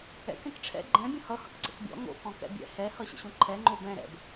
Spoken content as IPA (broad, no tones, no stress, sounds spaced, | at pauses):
ɛ̰ k ɛ̃ k ʈ͡ʂʰ ɛ̰ ɡ͡ǃ ɛ̃ bʲ ə̃ h ʌ h ʌ k ǀ ə̰ k bʲ ɔ̰ ŋ o̰ k ɔ̃ k ɛ̰ bʲ ɛ̰ h ɛ h ʌ ɕ ə̰ ɕ õ ǃʰ ɛ ŋ͡ǃ o b ɛ̃ ɾ ɛ̰ b